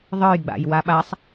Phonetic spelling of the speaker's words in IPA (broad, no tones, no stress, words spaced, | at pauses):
ðˤə˞jɡ͡ba̰j waɓasˤ